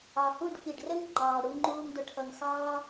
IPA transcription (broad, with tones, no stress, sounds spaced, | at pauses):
ɑ˨ h u˦˨ ɖ f i˨ ɖ r ə˦ ŋ ŋ͡ǃ ɑː˨ ɽ u˧ ŋ͡ǃ uː˧ ŋ d ʊ˨ ʈʰ ʌ˨ ŋ x ɑː˦